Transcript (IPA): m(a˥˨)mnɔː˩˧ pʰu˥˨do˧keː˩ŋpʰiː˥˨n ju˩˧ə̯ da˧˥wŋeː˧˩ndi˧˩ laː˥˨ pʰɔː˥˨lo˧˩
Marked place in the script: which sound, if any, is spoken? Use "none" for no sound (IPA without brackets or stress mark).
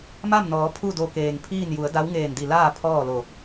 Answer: a˥˨